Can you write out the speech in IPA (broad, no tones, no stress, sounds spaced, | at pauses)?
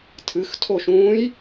tʰ ɨ x tʰ o ʃ ũː j